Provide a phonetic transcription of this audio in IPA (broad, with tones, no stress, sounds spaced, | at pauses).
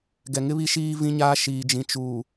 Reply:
ɡ ɛ˨ ŋ ɪ˦ β i˦ ʃ iː˦ v ĩ˦ ɲ aː˦ ʃ iː˨ d͡ʒ ĩ˨ t͡ʃ uː˨